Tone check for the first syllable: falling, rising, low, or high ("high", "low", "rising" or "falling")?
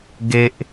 high